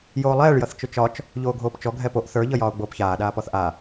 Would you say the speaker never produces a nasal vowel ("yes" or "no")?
yes